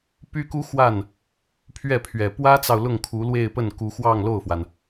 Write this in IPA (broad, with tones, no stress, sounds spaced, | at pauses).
p y˥ k u˥ x w a˥˩ n | pʰ ɥ ɛ˥˩ pʰ ɥ ɛ˨˩ p w ä˥ t͡s ɑ˨ ʊ̯ l ʊ˥˩ ŋ kʰ u˧˥ l w e˥˧ ɪ̯ p ə˥˩ n k u˧˥ x w ɑ˥˧ ŋ l o˥˩ ʊ̯ f w a˩ n